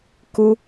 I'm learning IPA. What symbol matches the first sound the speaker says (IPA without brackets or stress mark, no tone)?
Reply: k